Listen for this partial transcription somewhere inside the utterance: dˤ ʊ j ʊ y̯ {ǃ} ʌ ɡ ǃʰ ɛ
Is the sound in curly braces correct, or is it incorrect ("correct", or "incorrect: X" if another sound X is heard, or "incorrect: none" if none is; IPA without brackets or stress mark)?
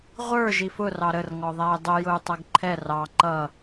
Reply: incorrect: tˤ